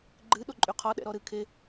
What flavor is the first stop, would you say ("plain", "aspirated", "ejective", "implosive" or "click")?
click